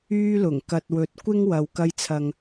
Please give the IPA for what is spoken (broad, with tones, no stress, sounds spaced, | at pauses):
yː˥ l ʊ˨˩ ŋ k ɐ˧ t̚ w ɵ˧ t̚ kʷ ɪ˥ ŋ w ɐ˨ w k ɐ˧ j t͡sʰ ɐ˨ ŋ